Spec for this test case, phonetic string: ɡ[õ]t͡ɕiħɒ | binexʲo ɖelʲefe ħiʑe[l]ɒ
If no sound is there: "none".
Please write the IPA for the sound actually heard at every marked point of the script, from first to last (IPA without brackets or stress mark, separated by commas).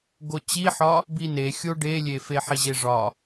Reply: o, ʐ